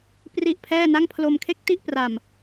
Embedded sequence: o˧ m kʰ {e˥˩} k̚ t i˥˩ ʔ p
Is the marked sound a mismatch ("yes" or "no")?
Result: no